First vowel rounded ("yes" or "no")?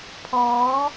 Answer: yes